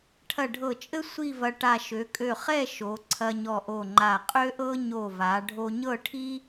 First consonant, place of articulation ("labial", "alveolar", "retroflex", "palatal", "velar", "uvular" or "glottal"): retroflex